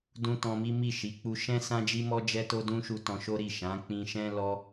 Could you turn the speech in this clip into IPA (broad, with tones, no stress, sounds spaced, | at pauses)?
d ũ˧ t ɔ̃˧ m i˦ m i˦˨ ʃ i˨˦ k͡p u˧ ʃ ɛ̃˦ s ã˦ d͡ʒ i˦ m ɔ˦ d͡ʒ ɛ˦ t o˦ d ũ˦ ʃ u˧ t ɔ̃˧ ʃ o˦ ɾ i˦˨ ʃ ã˨˦ k͡p ĩ˧ ʃ ɛ̃˦ l ɔ˦